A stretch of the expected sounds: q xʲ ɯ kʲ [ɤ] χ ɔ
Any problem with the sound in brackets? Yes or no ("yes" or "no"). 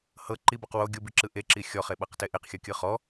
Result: yes